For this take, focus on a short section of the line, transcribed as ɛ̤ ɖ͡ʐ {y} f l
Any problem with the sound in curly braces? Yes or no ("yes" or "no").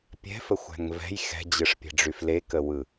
no